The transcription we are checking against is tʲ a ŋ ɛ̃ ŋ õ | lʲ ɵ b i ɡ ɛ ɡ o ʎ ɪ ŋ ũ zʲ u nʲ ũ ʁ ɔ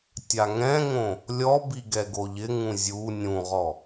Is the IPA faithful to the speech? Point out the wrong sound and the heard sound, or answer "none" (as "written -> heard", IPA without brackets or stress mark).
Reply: ɵ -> ɔ